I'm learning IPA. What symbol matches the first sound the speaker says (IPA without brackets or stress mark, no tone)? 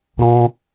ɾ